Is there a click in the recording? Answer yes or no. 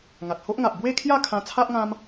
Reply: no